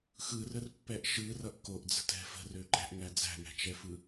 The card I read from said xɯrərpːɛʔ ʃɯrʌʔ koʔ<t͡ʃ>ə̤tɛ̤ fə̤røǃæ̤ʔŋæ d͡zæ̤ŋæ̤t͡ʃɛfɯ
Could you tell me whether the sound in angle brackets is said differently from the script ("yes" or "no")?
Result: yes